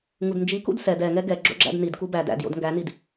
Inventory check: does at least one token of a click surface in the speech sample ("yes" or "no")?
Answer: yes